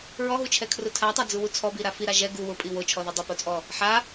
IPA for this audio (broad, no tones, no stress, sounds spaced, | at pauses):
ɹ ɔ ɦ u t͡ʃʰ ɛ kʰ r ʊ tʰ a tˤ a d͡z u w u t͡sʰ ɔ b i ɾ a f i ɾ a ʒ ɛ ɡ u w ʊ pʼ i w o t͡ʃʰ ɔ ð i dˤ u p o t͡sʼ ɔ | ħ a